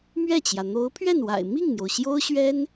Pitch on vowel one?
falling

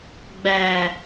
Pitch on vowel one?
low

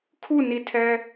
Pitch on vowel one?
falling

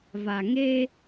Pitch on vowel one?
low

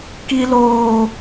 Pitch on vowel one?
high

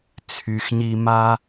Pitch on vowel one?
low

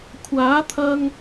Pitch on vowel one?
rising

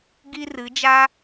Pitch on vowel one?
high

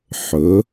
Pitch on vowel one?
rising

